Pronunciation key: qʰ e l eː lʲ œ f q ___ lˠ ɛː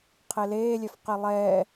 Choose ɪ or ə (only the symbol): ɪ